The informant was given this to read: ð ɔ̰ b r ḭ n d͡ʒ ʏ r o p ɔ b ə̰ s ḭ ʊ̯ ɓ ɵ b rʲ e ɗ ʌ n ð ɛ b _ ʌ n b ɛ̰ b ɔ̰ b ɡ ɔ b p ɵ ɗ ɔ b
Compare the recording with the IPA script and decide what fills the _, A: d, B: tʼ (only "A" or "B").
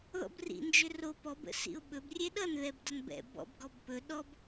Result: A